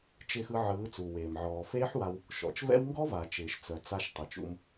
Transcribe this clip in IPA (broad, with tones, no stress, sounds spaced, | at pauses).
t͡ʃ ɪː˧ x ɯ˧ ʕ ɯː˨˦ t͡s u˨ w eː˨ m ʕ ɔː˨ f eː˦ ħ w a˧ w | ʃ ɔ̰˨ t͡ʃ v ɛ̰˦ w ŋ ɡ ɔ˦ v a˨ t͡ʃ ɪː˨ ʃ t͡s œ˨ t͡s a˧ ʃ tˤ ɪ˨ t͡ʃ ṵ˧ m